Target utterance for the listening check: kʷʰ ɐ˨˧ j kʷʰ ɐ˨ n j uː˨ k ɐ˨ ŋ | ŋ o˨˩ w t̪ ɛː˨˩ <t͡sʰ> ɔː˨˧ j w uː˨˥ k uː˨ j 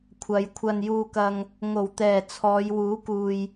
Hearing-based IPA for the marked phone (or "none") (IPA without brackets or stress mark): t͡sʰ